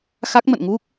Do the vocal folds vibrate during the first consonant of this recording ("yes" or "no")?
no